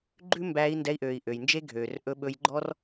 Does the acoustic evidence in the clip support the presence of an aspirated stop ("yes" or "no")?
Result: no